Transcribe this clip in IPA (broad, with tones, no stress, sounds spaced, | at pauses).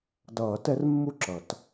d ʌː˨˩˦ t ɛ˧˥ r mː u˥˩ ǁ ʌ˨˩˦ t